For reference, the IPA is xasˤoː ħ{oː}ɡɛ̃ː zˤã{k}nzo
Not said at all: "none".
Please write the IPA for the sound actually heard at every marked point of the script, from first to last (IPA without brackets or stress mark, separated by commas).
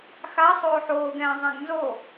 oː, ɡ